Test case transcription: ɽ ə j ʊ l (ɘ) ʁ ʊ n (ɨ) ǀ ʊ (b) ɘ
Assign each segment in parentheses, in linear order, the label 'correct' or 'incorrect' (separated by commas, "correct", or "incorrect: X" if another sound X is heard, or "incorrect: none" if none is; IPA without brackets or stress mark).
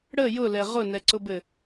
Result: incorrect: ɛ, incorrect: ɛ, correct